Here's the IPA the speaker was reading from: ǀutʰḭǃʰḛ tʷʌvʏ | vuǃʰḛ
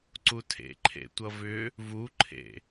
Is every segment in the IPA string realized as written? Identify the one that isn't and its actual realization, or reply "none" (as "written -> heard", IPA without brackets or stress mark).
ḭ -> ḛ